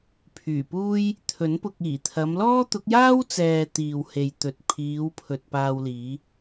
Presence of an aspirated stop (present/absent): present